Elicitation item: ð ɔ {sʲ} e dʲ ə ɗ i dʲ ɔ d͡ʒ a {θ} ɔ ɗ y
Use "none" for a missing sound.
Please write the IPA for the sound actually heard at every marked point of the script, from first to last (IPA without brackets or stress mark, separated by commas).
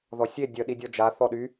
sʲ, θ